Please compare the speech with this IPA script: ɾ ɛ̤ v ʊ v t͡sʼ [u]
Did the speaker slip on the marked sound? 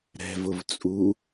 no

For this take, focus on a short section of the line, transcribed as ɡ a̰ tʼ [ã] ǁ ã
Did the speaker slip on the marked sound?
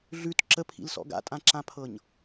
no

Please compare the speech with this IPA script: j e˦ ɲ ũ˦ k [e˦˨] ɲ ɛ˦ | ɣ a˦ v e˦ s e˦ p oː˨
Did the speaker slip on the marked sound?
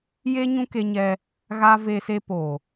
yes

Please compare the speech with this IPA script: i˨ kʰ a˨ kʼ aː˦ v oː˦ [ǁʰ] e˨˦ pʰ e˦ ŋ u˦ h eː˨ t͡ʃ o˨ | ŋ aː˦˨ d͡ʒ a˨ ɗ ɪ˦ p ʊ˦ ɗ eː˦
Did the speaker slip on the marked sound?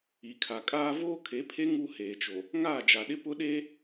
yes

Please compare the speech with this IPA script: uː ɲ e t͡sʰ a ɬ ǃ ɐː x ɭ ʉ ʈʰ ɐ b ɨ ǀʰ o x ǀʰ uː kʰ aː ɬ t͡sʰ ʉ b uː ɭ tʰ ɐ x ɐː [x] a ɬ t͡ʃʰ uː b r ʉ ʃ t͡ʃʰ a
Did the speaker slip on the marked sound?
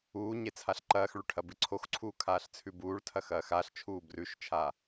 no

